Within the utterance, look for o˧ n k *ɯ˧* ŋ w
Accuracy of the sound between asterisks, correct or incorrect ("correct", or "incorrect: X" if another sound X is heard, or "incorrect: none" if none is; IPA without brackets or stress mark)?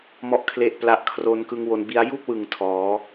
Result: correct